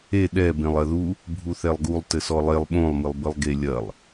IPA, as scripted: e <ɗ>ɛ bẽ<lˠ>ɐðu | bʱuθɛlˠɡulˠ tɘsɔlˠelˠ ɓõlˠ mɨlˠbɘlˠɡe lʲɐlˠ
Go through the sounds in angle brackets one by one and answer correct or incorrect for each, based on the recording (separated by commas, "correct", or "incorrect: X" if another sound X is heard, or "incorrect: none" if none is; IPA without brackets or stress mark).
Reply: correct, correct